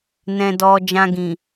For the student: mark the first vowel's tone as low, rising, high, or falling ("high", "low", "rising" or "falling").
low